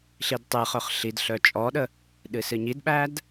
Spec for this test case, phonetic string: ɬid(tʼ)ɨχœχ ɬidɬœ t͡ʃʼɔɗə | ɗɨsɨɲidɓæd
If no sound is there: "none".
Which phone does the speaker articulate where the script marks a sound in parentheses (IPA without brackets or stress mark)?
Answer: tˤ